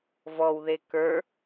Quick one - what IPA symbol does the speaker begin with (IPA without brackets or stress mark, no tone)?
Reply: v